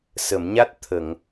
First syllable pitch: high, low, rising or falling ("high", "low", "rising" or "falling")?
low